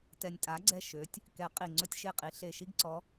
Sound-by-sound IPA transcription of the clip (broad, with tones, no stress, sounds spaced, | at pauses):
t ɛ˨˩ nʲ tʼ a˨˦ ɡ͡ǀ ɛ˦˨ ʃ ø˨˦ tʲ | k ɛ˨˦ qʼ i˨˩ ŋ͡ǀ ɵ˦ tʲ ʃ e˦˨ qʼ i˨˦ ɬ e˨˩ ʃ i˦ ɡ ǀ ɔ˨˦